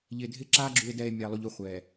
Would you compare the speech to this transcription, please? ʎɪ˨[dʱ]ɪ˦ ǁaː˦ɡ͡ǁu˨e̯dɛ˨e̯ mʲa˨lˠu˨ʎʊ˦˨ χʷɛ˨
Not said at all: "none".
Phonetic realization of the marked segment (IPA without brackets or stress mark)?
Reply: dʱ